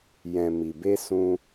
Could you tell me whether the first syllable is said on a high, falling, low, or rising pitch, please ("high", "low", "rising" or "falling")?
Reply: low